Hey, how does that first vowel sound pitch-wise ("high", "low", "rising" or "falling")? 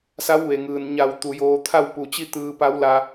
rising